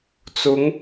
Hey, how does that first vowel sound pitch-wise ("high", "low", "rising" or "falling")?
rising